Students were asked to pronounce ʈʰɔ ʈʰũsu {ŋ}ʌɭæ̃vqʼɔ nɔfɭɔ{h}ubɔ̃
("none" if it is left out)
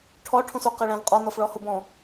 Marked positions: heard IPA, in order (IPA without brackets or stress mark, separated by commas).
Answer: q, h